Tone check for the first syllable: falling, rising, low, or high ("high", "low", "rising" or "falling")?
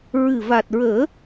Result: low